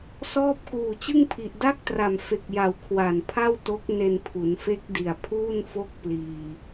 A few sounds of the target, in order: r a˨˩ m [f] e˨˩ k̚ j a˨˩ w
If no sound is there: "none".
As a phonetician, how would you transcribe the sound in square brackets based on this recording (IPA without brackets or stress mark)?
f